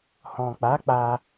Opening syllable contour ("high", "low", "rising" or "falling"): low